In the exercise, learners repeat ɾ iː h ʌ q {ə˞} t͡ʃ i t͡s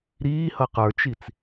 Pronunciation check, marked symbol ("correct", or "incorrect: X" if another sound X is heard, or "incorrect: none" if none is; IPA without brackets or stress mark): correct